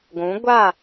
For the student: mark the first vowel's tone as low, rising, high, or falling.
rising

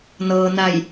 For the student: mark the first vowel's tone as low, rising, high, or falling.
low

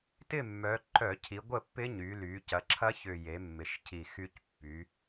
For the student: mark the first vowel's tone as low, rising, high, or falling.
falling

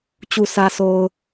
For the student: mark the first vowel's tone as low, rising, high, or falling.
low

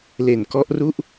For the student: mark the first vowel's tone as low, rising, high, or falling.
low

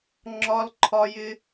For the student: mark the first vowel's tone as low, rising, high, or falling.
high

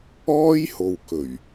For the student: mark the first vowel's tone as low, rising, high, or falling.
high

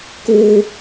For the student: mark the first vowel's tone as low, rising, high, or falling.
high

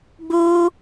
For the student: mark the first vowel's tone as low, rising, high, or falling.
high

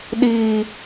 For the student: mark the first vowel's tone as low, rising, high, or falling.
low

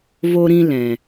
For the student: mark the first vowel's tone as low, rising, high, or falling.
high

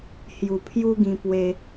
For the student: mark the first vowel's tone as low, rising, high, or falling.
low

